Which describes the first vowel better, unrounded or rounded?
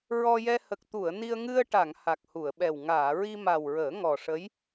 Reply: rounded